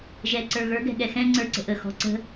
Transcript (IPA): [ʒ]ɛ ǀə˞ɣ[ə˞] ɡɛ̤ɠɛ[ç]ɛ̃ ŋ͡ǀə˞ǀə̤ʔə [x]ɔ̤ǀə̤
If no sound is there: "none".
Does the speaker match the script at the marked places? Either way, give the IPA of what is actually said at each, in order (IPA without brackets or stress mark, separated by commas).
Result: ʒ, ə˞, x, x